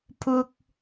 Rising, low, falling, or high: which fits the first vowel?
low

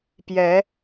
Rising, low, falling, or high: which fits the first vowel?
rising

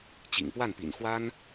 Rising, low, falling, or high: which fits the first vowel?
low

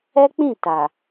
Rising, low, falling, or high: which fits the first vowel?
high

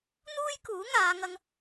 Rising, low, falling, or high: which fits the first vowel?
high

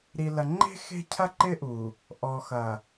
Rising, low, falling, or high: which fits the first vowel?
low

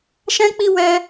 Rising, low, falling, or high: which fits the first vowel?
high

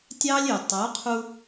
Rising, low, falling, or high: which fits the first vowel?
high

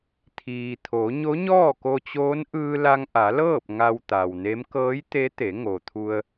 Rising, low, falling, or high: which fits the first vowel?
low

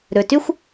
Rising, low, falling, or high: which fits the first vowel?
low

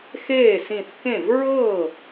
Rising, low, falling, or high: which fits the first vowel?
falling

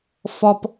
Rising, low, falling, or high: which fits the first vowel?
low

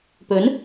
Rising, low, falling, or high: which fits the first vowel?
rising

